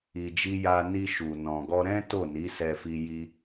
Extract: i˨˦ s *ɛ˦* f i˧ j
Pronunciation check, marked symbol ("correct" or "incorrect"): incorrect